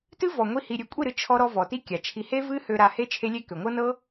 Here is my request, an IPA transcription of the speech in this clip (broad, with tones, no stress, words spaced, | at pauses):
tɨ˦vɔ˨ŋʷi˧ hi˨ɾʲø˨kʷʼi˦˨ɾɨ˧ t͡ʃʰɔ˧ɾɔ˧ vɔ˨ti˦kʲa˨t͡ʃʰi˧ he˦vɨ˦ hø˧ɾa˧he˦ t͡ʃʰe˦lʲe˦kø˨ ŋʷɤ˦nɤ˦